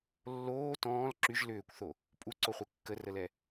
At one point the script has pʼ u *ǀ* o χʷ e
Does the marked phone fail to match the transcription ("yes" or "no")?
no